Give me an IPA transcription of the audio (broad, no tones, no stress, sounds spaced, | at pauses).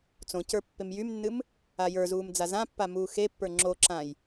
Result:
t͡s õ c ə˞ pː e m j y m nː ɨ m | a j ə˞ z uː m d͡z a z ã pː a m uː x e pː ə˞ ŋ͡ǁ o ǁ ã j